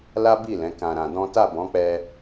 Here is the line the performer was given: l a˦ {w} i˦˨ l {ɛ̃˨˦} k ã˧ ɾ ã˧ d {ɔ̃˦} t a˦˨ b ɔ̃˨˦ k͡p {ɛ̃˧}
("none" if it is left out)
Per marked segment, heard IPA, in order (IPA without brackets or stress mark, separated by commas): b, ɛ̃˨˦, ɔ̃˦, ɛ˧